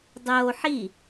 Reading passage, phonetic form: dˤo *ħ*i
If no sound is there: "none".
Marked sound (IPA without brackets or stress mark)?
ħ